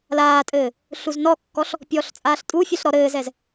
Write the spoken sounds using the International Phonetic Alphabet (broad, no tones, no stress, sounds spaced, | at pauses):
l aː tʼ ɘː | ɬ u z n ɔ kː ɔ ɬ | pʲ ɔː ɬ t͡sʼ aː ɬ tʼ u fʲ ɛ ɬ ɾ ɔ ɾ ɘː z ɛ z